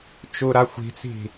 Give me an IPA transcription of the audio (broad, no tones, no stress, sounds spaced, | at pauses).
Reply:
t͡ʃ u ɾ a xʷ i̤ t͡s i̤